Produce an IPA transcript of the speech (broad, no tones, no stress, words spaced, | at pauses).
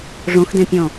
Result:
ʐõxdẽpʲɔ̃